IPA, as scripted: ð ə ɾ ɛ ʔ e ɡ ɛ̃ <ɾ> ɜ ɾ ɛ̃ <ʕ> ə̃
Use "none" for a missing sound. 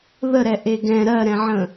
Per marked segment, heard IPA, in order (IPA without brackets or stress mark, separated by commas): ɾ, ʕ